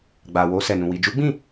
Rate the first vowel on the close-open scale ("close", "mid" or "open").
open